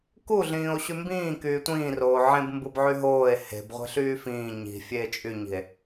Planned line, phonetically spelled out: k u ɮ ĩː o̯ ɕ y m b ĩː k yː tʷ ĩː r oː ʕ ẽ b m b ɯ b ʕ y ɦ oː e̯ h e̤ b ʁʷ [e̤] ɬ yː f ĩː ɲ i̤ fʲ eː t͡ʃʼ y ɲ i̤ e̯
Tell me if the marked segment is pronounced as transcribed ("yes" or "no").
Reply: yes